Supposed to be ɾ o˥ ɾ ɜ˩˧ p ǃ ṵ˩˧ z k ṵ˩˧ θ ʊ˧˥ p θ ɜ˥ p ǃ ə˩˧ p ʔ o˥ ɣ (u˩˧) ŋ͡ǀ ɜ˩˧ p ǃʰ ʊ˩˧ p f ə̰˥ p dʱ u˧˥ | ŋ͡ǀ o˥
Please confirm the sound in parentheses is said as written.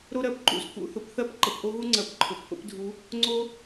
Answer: no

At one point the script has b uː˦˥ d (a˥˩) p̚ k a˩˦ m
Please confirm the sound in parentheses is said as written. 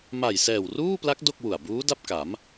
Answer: yes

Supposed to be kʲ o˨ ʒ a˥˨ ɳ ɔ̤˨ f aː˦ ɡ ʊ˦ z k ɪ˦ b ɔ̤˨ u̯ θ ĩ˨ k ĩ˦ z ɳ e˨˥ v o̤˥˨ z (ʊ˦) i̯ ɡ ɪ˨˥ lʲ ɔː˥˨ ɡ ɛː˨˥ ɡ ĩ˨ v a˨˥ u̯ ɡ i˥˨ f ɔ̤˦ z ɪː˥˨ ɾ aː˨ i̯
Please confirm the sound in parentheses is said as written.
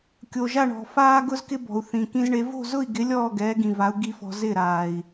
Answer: no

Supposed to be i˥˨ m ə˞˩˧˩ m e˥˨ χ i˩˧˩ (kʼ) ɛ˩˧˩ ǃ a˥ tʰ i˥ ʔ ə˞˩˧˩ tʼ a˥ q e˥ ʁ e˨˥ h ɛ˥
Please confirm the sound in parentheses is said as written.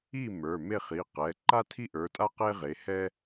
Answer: no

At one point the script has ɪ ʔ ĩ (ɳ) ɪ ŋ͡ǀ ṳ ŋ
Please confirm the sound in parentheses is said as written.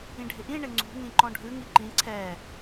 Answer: yes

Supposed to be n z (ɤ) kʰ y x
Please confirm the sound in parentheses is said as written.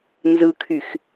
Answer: no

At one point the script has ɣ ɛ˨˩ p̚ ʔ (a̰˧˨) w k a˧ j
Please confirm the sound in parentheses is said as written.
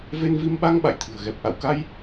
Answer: yes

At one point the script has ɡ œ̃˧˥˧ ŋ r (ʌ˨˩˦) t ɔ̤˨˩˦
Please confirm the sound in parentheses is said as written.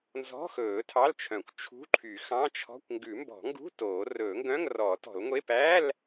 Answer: no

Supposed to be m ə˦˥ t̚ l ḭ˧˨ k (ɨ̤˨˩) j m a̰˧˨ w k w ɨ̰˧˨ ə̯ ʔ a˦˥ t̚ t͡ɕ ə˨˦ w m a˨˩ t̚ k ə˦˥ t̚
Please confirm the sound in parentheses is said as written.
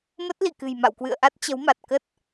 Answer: yes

